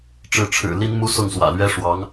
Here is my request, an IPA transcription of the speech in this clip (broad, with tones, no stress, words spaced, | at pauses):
ʈ͡ʂɻ̩˧˥ ʈ͡ʂʰɻ̩˨˩ li˥nmu˥ sʊ˥˩ŋswä̰˨˩lɥɛ˥ ʂwɑ˧˥ŋ